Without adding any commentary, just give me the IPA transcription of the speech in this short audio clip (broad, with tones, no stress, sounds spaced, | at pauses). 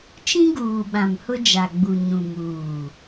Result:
t͡ʃ ĩ˦ ɡ uː˨ ɓ ã˨ m h ʊ˦ d͡ʒ a˨ ɡ͡b u˨ ɲ ũ˨ m uː˨